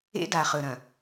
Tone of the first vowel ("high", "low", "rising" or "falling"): high